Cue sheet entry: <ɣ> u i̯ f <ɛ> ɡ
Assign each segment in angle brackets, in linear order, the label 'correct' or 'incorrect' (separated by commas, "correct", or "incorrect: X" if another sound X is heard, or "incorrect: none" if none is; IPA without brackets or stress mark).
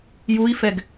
incorrect: j, correct